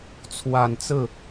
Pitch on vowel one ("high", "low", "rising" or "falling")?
low